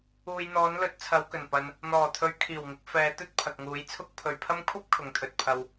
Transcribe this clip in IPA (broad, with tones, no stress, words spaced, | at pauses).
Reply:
uː˨j n̪ɔː˨˥nlɵ˨˥t̚ t͡sʰɐ˨˧wkɵ˨˩n pɐ˨n | n̪ɔː˨˩t̪ʰɵ˨˧ɥ kʰiː˨˩wŋɪ˨˥k̚ fɛː˨˧t̪ɵ˥t̚ pʰɐ˨k̚ŋuː˨˥jt͡sʰʊ˥k̚ pʰɵ˨ɥpʰɐ˥m kʷʰɐ˥p̚ kʰʊ˨˧ŋt̪ʰɵ˨˥t̚ pʰɐ˧w